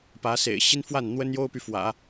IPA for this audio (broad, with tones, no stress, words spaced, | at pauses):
pä˧˥sḛ˨˩ɪ̯ ɕi˥nfwa˥˩n n̪wə˥njo˥ʊ̯py˨ fwä̰˨˩˦